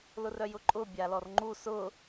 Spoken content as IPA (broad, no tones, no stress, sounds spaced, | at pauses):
l ʊ r œ j ʊ ǃʼ ʊ bʲ a l ɔ r ŋ͡ǃ u s ʊ